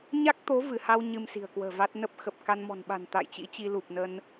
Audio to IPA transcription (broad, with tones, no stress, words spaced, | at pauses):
ɲa˦˥k̚t̪o˨˦ vɨ˧˩ha˧w ɲɨ˧msi̤˨˩ə̯kwə̤ː˨˩va˦˥t̚ nə˦˥p̚ xə˨˩p̚ka˧nmɔ̤˨˩nɓa̤˨˩n t̪a̰˧˨jt͡ɕḭ˧˥t͡ɕi˧ lu˨˩p̚nə˧n